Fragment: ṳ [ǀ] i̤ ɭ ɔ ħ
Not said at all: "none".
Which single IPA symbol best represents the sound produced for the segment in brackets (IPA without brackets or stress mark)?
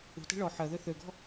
t